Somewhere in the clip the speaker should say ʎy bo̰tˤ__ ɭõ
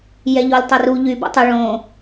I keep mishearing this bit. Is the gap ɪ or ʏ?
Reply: ʏ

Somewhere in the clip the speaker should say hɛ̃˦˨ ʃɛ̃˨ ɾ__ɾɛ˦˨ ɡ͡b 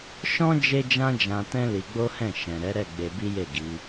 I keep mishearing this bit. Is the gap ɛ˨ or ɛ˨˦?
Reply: ɛ˨˦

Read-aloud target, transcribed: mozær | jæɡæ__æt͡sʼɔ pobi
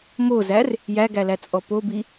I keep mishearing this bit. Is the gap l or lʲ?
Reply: l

